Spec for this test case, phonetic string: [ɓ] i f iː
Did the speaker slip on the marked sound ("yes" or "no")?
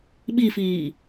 no